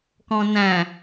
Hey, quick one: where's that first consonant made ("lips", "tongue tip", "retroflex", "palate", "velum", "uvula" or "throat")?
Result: velum